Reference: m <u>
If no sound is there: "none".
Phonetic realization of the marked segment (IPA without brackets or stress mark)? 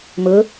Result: ʊ